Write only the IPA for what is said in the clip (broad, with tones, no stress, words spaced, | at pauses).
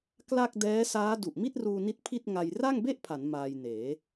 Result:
kla˥˩k̚ dɛː˦˥saː˦˥ du˨˩ʔmi˥˩t̚ruː˧ni˦˥t̚ pʰi˥˩t̚ ŋa˧jra˥˩ŋbe˥˩ʔpʰa˩˦n maː˧jneː˩˦